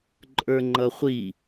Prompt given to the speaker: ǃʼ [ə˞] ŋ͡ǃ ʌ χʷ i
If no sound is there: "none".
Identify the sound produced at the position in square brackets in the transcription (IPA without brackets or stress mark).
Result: ə˞